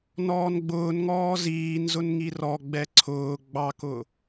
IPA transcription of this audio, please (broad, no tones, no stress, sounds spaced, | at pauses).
n ɔː n ɡ͡b ʊː n ŋ ɔː z iː n z ʊ n ŋ i r ɔ ɡ͡b ɛ ǀʰ ʊː ɡ͡b ɑ k ʊ